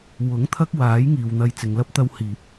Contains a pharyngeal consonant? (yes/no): no